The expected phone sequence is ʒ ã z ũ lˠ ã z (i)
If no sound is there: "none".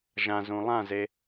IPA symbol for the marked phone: e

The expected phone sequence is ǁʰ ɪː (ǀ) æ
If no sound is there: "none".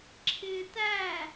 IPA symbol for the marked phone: t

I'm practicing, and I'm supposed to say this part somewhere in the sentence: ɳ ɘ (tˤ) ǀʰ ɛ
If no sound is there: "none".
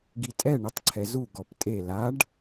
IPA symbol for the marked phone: tˤ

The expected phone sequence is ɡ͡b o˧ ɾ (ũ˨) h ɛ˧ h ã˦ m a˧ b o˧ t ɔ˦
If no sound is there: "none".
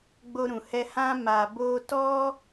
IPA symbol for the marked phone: ũ˨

